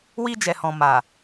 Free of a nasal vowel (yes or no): no